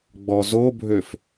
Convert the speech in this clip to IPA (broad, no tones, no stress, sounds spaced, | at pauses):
ɡ͡b ɔ z o bʱ ø f